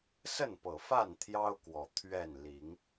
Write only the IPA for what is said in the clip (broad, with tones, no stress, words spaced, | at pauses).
sə˥˨npɤ˨˩fa˥˨n t̪ʰjɑ˦ʊ̯kwɔ˨˩ t̪ʰɥɛ˥˨n li˨˦ŋ